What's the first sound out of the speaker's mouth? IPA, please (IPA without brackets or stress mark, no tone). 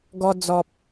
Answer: ɡ